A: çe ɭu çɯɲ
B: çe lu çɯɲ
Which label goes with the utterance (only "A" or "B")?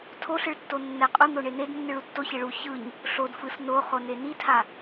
A